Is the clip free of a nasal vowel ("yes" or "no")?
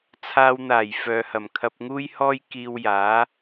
yes